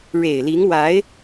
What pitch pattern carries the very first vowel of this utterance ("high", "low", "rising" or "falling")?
low